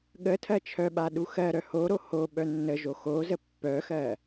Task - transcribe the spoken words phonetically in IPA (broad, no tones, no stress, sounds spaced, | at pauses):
ɠ ə tʰ ɜ t͡ʃʰ œ ɓ a ɗ u x ɜ ɾ œ h o ɾ o h o ɓ œ nː ə ʒ o x o z ə pː œ x ɜ